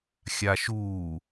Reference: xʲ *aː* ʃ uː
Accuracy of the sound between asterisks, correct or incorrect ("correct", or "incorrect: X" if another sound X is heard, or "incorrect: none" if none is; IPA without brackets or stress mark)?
incorrect: a